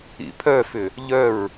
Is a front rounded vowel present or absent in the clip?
present